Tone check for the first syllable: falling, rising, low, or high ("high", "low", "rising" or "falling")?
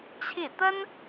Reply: falling